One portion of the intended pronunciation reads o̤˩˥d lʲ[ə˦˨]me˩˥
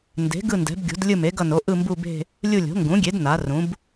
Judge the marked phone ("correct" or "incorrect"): incorrect